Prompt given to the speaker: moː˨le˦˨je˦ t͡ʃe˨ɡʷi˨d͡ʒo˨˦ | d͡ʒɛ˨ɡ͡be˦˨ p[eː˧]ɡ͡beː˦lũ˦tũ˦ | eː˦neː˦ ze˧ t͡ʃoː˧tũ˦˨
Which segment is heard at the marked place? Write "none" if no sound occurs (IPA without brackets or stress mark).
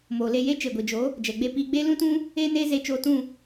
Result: iː˧